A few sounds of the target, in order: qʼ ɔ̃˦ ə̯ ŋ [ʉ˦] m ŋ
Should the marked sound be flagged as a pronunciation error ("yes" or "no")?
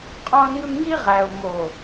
no